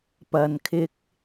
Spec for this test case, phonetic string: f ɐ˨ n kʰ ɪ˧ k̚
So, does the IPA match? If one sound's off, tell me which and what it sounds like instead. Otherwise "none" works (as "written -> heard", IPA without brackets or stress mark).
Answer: f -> p